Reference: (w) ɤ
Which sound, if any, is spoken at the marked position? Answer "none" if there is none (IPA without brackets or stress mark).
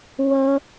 w